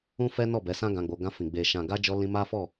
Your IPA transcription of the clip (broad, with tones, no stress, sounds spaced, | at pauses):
ũ˦ f ɛ˦ n ɔ˦˨ b ɛ˨˦ s ã˦ ɡ ã˧ ɡ͡b o˧ ɡ ã˧ f ĩ˨ ɡ͡b e˨ ʃ ã˨ ɡ a˧ d͡ʒ ɔ˧ l ĩ˧ m a˦ f ɔ˦˨